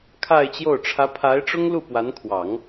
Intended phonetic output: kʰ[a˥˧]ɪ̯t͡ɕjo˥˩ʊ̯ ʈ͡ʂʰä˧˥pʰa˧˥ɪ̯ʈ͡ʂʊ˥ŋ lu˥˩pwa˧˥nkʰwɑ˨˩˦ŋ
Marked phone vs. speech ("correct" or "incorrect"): correct